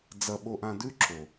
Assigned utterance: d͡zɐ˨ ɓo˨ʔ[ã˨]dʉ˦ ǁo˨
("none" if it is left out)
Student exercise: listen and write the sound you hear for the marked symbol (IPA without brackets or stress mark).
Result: ã˨